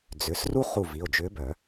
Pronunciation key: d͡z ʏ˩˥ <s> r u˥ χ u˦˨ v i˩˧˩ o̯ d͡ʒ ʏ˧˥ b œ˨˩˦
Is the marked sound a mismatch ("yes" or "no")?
no